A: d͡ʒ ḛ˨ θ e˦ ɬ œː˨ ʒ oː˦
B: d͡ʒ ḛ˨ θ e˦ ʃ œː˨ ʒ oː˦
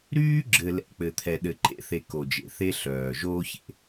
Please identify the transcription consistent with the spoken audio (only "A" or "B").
A